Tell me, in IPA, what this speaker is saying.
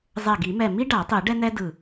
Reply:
zˤɛ˧˩ɡi˨˩˦mɛ˧˩ mi˥ɖa˨˩˦tˤi˨˩˦ ɖɛ˥nɛ˥dɯ˧˩

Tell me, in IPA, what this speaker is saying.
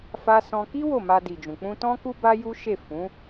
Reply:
fa˦sɔ̃˦ ki˦ wo˦˨ma˧di˨d͡ʒũ˨ k͡pũ˧tɔ̃˦ ku˧ba˧ ju˦ʃe˦˨ fũ˨˦

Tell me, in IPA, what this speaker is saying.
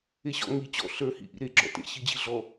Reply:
eɕɔ̰ ŋi t͡ɕɔ̰ ɬə˞hḭ ʔḭɾeɡ͡ǁɔ̰ tḛɕid͡ʑi ɮɔ

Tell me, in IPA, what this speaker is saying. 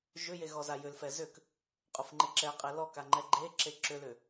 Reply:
ʒʏje ɣɔzajʏlfɛ zʏk | qʼʊfŋ͡ǃeǁɛqʼe lɔka ŋ͡ǃɛɡ͡ǃeǁe ǁʏlʏ

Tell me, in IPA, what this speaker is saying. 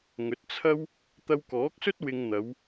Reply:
ŋɵ˨˥t̚t͡sʰɐ˥w | t̪ɐ˧wkɔː˨˥k̚sɵ˥t̚ wɪ˧ŋn̪ɐ˨˧w

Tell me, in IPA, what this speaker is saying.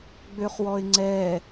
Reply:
ɡ͡bøχwɔɪ̯ŋ͡ǀɛ

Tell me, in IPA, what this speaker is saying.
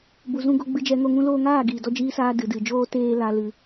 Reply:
bu˨zũ˧ɡo˧ ɡ͡bɨ˧d͡ʒɛ˧ŋo˧ ŋũ˧loː˧ŋaː˦˨ ɡiː˨dɔ˧d͡ʒiː˧saː˧ dɨ˨dɨ˨d͡ʒoː˦ teː˧ la˧ lɨ˧

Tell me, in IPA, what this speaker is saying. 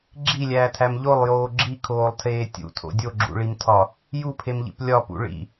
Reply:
ɡ͡ǁilʲæːtʰæm ʎolˠjoː ɡ͡ǁikʰoːlˠtʰeː tʲṵtʰo̰ dʲoɡ͡ǁṵɭimtʰɒ | jupʰemʎḭp lʲɒpṵ ɭḭ

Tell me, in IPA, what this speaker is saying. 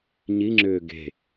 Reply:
ɲiŋ͡ǁʏː ɡe̤

